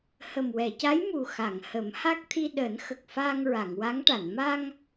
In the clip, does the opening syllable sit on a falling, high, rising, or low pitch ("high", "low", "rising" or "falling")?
low